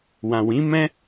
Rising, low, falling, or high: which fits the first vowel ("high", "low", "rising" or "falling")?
low